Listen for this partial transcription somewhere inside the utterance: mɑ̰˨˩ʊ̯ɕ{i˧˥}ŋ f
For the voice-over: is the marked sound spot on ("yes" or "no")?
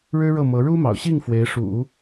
no